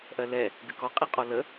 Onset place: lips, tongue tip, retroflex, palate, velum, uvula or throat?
throat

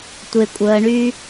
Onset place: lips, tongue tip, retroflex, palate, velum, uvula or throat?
tongue tip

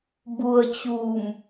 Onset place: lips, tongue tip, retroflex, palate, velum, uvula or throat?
lips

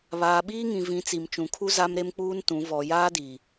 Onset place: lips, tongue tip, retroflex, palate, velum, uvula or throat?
lips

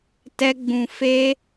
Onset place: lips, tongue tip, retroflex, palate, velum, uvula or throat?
tongue tip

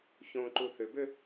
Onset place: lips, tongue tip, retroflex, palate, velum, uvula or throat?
palate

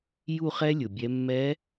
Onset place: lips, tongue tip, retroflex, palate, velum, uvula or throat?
palate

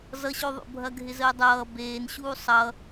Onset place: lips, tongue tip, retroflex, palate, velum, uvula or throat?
tongue tip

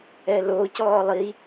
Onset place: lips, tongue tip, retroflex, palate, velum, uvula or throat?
tongue tip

